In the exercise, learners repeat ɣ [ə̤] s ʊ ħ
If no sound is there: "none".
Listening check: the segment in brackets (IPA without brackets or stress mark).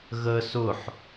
ə